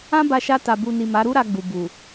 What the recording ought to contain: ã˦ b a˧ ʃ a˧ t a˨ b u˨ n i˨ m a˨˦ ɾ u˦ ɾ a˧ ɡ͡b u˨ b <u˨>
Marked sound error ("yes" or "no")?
no